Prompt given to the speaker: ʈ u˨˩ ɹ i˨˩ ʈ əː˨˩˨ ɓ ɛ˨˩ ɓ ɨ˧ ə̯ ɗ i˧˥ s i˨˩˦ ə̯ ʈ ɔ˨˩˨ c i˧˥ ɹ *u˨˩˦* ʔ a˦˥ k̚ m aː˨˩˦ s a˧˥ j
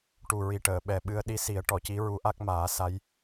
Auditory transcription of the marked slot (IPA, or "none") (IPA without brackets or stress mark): u˧˥